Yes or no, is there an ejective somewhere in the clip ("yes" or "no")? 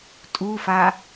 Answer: yes